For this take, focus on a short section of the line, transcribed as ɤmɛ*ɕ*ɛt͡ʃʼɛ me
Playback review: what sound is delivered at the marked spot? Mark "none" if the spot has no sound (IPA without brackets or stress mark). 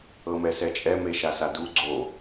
s